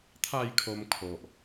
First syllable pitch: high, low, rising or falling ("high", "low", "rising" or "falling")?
falling